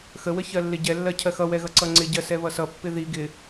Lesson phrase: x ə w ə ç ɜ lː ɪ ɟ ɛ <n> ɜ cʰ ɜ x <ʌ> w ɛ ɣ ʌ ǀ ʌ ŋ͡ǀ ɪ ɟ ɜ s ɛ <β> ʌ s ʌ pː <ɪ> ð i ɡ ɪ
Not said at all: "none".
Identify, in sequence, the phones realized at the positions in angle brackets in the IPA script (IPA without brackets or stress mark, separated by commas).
lː, ʌ, β, ɪ